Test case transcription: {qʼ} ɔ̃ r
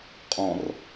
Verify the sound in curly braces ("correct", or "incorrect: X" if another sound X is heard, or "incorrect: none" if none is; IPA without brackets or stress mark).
correct